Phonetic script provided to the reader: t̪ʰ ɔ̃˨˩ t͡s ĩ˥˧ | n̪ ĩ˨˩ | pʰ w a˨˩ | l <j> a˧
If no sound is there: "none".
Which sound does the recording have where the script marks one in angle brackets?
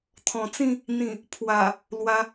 w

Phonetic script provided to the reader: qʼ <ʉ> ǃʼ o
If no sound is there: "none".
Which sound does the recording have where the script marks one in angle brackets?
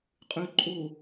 ʉ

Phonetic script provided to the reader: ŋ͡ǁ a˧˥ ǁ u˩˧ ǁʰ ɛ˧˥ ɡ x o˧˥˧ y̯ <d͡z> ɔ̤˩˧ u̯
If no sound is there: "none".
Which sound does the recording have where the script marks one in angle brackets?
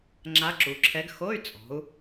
t͡sʼ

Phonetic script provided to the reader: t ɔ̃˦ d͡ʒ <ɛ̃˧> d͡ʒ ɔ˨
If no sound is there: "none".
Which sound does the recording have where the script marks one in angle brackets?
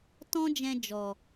ɛ̃˧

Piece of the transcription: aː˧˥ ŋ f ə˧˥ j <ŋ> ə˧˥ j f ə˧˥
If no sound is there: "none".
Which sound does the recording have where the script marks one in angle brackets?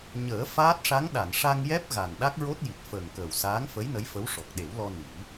n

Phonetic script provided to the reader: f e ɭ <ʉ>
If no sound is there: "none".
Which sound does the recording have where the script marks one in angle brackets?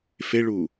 u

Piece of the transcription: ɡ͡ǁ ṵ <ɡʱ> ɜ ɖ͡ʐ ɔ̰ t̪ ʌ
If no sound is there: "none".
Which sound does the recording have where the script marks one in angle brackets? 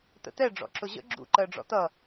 ǃ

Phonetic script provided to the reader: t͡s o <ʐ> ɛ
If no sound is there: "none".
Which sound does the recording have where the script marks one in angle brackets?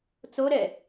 ɾ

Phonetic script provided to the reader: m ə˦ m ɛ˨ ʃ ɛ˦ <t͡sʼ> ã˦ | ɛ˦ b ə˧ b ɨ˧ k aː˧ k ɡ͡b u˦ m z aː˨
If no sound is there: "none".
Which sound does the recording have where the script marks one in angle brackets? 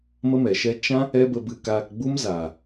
t͡ʃ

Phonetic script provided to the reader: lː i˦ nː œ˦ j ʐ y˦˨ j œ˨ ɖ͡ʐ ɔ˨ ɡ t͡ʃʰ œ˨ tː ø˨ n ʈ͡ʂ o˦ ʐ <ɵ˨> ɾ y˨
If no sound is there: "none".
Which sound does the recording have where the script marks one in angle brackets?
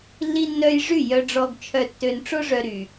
œ˨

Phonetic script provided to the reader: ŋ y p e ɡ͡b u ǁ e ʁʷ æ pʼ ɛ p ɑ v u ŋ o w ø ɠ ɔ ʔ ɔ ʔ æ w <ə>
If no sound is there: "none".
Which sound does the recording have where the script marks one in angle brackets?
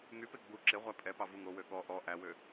ø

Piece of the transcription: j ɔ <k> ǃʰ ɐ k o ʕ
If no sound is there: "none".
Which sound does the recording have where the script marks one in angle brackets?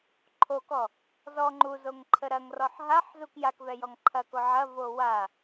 ŋ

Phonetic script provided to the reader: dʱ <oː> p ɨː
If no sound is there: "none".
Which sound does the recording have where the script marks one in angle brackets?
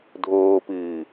oː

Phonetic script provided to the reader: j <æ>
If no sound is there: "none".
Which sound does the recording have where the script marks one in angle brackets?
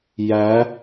æ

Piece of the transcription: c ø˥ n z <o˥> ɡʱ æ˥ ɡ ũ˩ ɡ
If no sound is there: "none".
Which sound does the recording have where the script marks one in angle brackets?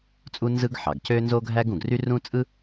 o˥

